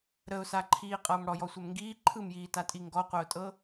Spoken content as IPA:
ɾ ə ʊ̯ s a ǃʰ iː qʼ ʌː m ɽ ɔ j ɔ sʷ ɛ m ŋ ɡ iː ǃʰ ɯ m j iː t a tʼ i ŋ ɡ ɔ qʷ œ ʊ̯ tʼ ɤ

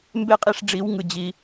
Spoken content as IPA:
m b e˦ qʼ i˧ ʂ ɖ͡ʐ i˨˦ w ŋ ɯ˨ d͡ʑ i˧

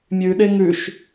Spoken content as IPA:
mʲ ʉ ɗ e ŋ ʉ ʃ

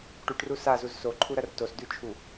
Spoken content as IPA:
ʈ u ʈ r u s a z u z s o ǃʰ u ɾ ɐ r t o s d ʉ t͡ʃʰ u

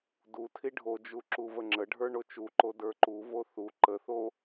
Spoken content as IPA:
d u tʰ i ɖʱ o d͡ʒ u ǁ u v ə ŋ͡ǁ ə ɖʱ ə˞ ɳ o t͡ʃ u ǃ o d ə˞ ǃ u v o θ u ǃ ə θ o

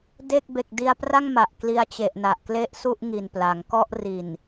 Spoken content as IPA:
d e˥˩ k̚ b e˨˩ k̚ d i˧ a̯ p r a˥˩ ŋ m a˨˩ ʔ k l i˧ a̯ t͡ɕ e˨˩ ʔ n a˨˩ ʔ k l e˥˩ ʔ s u˥˩ ʔ ŋ i˨˩ n p l a˩˦ ŋ k ɔ˥˩ ʔ r i˨˩ n

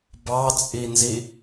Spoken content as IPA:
b ɑ t͡sʼ i n z i

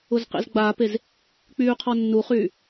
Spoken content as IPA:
ʊ z q ḛ z ɡ͡b aː p e z | k͡p yː qʰ ɔ nː u χ yː

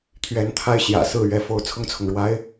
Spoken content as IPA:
t̪ʰ ɥ ɛ˧˥ n t̪ʰ a˥˩ ɪ̯ ɕ j ä̰˨˩ s ɹ̩˥˩ ɥ ɛ˥ f o˥ ʊ̯ t͡sʰ ʊ˥˩ ŋ t͡sʰ ʊ˩ ŋ ɻ w a˥ ɪ̯

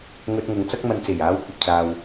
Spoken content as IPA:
ŋ ɵ˧ t̚ ŋ ʊ˨ ŋ t͡s ɐ˥ k̚ m ɐ˧ n t͡s e˨˩ j aː˨˥ w kʷʰ ɐ˨ p̚ t͡s aː˨ w

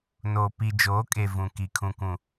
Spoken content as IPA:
n oː˨ p i˨ d͡ʒ oː˨˦ kʼ e˨ v ũ˨ k i˨ kʰ ũ˨ kʷ ũ˨

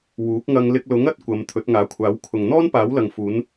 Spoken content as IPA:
w uː˨˥ k̚ ŋ ɐ˧ ŋ l ɪ˧ k̚ l ʊ˨˥ ŋ ɐ˧ t̚ kʷ ɐ˨˧ m t̪ʰ ɵ˨˥ t̚ ŋ aː˨˥ kʷʰ aː˨˥ w kʰ ʊ˨ ŋ n̪ ɔː˥ n p aː˨˥ w l ɐ˨ ŋ f uː˨˧ n

